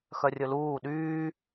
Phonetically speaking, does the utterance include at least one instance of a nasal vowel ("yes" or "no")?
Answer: no